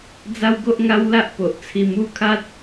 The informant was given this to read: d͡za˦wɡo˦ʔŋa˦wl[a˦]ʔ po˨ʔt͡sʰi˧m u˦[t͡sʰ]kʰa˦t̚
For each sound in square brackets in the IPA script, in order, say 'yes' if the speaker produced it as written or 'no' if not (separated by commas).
yes, no